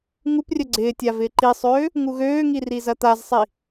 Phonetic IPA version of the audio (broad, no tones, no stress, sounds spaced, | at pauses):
ŋ u p rʲ œ ɡ͡ǀ ɪː tʲ a v ɪː ǃ i sˤ øː | ŋ u ɣ øː ŋ i r i z ɐ t̪ a z sˤ i